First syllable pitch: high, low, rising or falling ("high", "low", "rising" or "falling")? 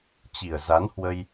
low